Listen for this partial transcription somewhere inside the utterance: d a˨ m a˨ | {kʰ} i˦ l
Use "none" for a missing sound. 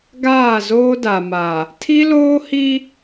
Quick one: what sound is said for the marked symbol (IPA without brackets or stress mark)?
tʰ